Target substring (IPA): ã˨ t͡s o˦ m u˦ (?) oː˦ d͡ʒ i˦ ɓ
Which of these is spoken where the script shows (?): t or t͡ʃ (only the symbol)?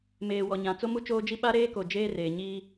t͡ʃ